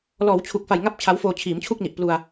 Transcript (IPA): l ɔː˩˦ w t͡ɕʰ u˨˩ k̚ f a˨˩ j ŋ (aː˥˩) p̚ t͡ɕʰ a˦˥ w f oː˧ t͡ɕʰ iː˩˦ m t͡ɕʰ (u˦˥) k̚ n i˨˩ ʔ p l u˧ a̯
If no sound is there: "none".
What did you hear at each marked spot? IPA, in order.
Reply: a˥˩, u˥˩

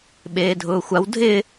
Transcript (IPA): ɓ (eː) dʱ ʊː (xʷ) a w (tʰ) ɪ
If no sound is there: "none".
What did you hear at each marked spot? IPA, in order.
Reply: eː, xʷ, dʱ

